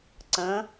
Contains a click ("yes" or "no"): yes